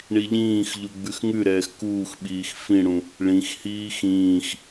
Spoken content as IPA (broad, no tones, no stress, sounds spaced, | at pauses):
ɳ i ʎ ĩː x ʎ u ɡ͡b ʉ x ŋ ʉ ɾ ɛː x k uː x ɓ iː x f ĩ ɽ ũ | ɭ ĩ x h iː x ĩː x